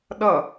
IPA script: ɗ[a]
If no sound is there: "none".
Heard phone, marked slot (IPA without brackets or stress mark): ʌ